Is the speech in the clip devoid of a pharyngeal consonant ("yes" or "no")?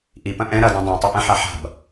no